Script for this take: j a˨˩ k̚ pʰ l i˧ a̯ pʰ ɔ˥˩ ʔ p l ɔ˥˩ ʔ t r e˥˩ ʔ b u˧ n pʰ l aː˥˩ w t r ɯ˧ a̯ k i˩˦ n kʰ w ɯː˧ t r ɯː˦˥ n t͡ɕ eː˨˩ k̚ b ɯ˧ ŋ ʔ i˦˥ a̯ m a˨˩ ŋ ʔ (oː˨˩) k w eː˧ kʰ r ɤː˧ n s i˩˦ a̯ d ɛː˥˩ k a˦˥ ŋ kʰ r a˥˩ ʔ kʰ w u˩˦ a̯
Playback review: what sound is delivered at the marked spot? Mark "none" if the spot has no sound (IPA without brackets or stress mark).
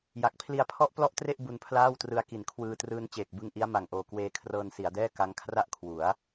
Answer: oː˨˩